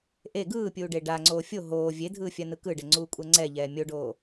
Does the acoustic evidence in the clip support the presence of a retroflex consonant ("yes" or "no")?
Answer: yes